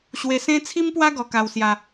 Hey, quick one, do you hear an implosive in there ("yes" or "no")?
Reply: no